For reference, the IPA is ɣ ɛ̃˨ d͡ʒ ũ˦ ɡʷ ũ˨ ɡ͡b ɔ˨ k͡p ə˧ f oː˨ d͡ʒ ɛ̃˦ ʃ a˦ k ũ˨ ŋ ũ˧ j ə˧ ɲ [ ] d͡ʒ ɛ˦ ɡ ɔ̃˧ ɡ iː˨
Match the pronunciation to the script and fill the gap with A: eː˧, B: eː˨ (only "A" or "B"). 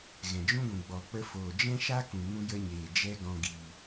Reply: B